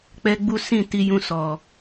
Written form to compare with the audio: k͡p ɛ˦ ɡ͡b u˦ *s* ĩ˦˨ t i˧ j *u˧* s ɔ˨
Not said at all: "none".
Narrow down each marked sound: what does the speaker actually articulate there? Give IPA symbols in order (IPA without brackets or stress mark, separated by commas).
s, ũ˧